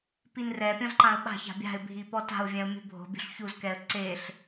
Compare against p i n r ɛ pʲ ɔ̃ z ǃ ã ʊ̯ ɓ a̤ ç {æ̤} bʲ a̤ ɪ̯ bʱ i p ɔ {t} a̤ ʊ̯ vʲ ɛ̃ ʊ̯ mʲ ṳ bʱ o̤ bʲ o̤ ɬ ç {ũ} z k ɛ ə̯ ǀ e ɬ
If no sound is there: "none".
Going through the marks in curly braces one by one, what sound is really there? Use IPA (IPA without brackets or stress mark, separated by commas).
a̤, t, u